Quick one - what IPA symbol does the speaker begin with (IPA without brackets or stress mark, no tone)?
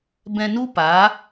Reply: b